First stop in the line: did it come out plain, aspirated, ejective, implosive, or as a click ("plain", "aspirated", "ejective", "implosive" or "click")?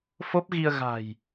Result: plain